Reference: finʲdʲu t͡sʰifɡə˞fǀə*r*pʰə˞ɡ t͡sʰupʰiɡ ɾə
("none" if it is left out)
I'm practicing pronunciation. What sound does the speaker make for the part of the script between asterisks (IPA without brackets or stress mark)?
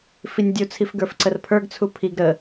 r